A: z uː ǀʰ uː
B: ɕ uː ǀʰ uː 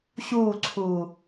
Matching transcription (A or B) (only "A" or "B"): B